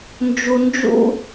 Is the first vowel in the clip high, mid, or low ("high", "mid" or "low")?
high